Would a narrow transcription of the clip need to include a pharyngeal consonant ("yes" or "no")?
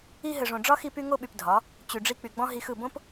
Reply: no